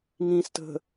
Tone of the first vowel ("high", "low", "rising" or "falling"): low